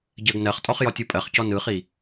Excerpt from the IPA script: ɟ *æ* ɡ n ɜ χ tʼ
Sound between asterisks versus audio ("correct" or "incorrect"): incorrect